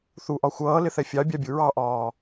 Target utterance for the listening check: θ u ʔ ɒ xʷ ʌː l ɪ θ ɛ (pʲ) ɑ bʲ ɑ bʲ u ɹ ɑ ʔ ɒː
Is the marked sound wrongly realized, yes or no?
yes